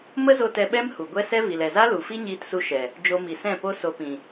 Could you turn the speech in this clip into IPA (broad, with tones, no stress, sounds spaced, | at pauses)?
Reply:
m ə˦ z o˧ t ɛ˧ ɓ ɛ˦ m h u˨ ɡʷ ɛ˦ s ɛ˦ v i˨ l ɛ˨ z a˦ l u˨ f i˦ ɲ iː˧ t s u˧ ʃ ɛ˨ | d͡ʒ o˧ m i˨ s ɛ̃˦˨ p o˦ s o˧ p ĩ˨